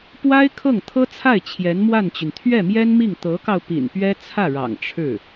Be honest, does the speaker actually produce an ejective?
no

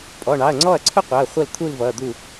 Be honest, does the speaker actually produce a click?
yes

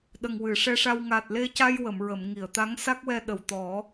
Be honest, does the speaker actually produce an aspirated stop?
no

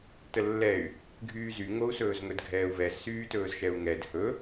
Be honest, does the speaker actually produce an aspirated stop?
no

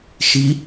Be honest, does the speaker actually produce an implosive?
no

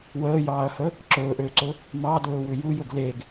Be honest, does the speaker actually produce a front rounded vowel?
yes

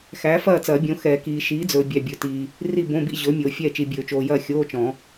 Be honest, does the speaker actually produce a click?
no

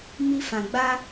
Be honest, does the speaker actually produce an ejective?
no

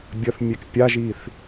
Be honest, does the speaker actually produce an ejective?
no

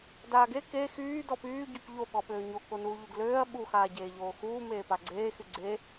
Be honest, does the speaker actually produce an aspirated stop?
no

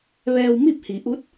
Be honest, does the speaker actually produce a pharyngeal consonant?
no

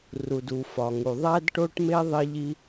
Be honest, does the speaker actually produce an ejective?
no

